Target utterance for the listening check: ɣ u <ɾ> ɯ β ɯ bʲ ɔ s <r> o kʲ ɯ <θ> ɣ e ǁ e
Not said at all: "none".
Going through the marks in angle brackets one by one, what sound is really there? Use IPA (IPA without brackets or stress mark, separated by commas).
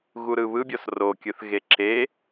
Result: ɾ, r, θ